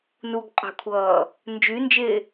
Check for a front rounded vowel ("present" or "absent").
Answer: present